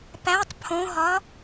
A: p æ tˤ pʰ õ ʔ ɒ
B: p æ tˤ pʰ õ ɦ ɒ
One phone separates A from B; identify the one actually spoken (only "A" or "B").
B